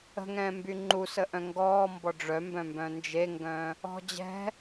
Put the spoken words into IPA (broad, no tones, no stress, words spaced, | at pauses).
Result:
ə̤ŋɛ̃ːmby ŋ͡ǃusəʔœ̃ ŋɡɔːmbɔ ɖ͡ʐœmbœ̃mbœ̃ nd͡ʒeŋɡœ̃ | ɔ̤ d͡ʑɛ̤